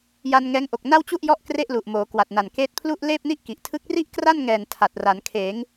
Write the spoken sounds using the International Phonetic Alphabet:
j a˧ n ŋ ɛː˦˥ ŋ ʔ o˨˩ k̚ n a˥˩ w t͡ɕ u˥˩ ʔ j ɔ˥˩ ʔ k r e˥˩ ʔ l u˨˩ ʔ m oː˩˦ k w a˨˩ t̚ n a˨˩ n k eː˦˥ t̚ pʰ l u˥˩ ʔ l eː˥˩ p̚ n i˥˩ ʔ k i˨˩ ʔ tʰ ɯ˦˥ k̚ r i˥˩ ʔ k r a˥˩ n ŋ ɛː˨˩ n tʰ a˨˩ t̚ r a˩˦ n kʰ eː˩˦ ŋ

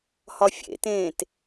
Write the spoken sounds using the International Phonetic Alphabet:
h ɒ fʲ ḛ t ẽː t

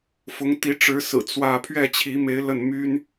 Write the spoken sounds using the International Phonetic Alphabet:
f ʊ˧˥ ŋ t̪ i˧˥ ʈ͡ʂ ɻ̩˧˥ s ɹ̩˨˩ t͡s w ä˥˧ pʰ ɥ ɛ˥˩ t͡ɕʰ i˧˥ m e˧˥ ɪ̯ l ə˥˩ n m y˥ n

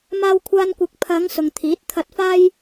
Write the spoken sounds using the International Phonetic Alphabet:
m aː˧ w kʷʰ aː˧ n kʷ ɪ˨˥ k̚ pʰ ɐ˨˧ ŋ s ʊ˨ ŋ t̪ʰ iː˨˥ t̚ t̪ʰ ɐ˧ t̚ f aː˥ j

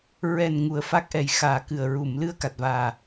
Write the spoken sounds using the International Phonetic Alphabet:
ɹ ɛ˨˩ n ŋ u˨˩ ə̯ f a˦˥ k̚ ʔ ɛ˨˩ j x aː˨˩ k ɨ˨˩ ə̯ ɹ u˨˩˨ m l ɨ˧ ə̯ k a˨˩ t̚ v aː˨˩

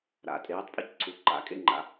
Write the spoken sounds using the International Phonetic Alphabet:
ɾ a̰˨˩˦ tʼ eː˨˥ tˤ pʼ ɛ̰˥ c ǀʰ u˨˥ ǃ a̰˨˥ kʼ ḛ˥ ŋ͡ǃ a̰˨˥

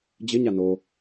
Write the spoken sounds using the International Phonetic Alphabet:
d͡ʑ ɪ ɲ a n o

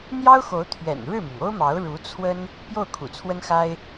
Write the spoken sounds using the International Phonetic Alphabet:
n̪ j ɑ˥ ʊ̯ x o˧˥ ʊ̯ t̪ʰ ɥ ɛ̰˨˩ n ɻ ɻ̩˥˩ m i˩ ŋ o˥ ʊ̯ m ɑ˧˥ ʊ̯ ɻ u˧˥ t͡sʰ w ə˥ n | p j o˥˩ ʊ̯ kʰ ṵ˨˩ t͡sʰ w ə˥ n x a˥ ɪ̯

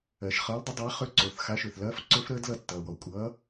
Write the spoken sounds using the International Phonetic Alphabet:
ɜ˩ ʃ χ ʌː˨˥ l dˤ ə˨˥ dˤ a˨˥ χ ø˦˥ ǀ o˩˧˩ θ x a˨˥ ʃ ø˩ θ l ɐː˦˥ f ǀ ø˦˥ f ɾ əː˦˥ d l ʌ˦˨ tː ʌː˩ w ɔ˩ kʷʼ ʌː˨˥

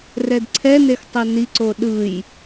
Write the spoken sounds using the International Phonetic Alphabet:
r ɛ d ǀʰ ɛ n e x tˤ ɛ n i ǀ o ɗ ɯ j

